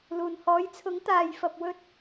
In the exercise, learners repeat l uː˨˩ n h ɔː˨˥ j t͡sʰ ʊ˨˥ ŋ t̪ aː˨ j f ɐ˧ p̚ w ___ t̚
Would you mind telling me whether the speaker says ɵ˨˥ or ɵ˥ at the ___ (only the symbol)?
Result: ɵ˥